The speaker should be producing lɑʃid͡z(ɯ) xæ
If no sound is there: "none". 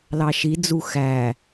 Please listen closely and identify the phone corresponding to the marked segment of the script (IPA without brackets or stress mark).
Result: u